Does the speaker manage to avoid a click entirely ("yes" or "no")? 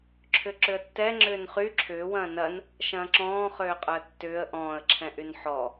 no